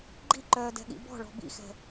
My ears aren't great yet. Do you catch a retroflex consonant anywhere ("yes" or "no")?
yes